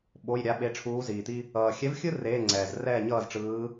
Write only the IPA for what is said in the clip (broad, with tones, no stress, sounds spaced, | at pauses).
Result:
ɓ o˧˥˧ j ɾʲ a˧˥ ɓ e˧˥ ʈ͡ʂʰ uː˧˥ z iː˨ t̪ i˥ | ʌː˨ xʲ ɛ˧˥ v xʲ ɯ˥ r eː˧˥˧ ŋ͡ǀ ɛː˨ z r ɛː˥˨ ɲ ʌː˥˨ z ʈ͡ʂ ɯː˧˥